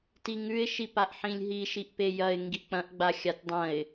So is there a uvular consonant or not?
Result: no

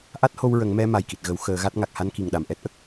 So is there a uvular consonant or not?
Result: no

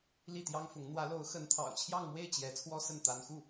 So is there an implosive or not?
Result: no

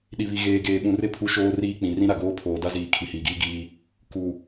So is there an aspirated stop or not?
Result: yes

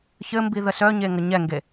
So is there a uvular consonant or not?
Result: no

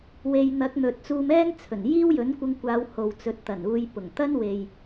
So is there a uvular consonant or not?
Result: no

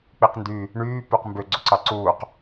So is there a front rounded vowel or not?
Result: yes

